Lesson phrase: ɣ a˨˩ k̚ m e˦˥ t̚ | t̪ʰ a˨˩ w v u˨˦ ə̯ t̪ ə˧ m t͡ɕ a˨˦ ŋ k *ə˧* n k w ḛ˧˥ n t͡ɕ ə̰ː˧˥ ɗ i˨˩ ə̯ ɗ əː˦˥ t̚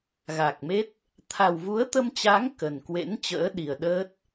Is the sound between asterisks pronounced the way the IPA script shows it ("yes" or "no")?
no